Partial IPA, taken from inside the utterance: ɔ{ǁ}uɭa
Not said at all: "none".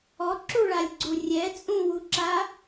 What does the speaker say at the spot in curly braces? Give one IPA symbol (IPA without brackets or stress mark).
ǁ